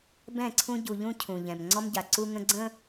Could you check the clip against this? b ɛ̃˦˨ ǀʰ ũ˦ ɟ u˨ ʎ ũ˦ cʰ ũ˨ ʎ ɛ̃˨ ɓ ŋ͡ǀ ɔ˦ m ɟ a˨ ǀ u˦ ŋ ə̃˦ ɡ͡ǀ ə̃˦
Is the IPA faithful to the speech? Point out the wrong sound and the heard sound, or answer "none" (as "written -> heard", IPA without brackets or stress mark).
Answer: ɓ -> m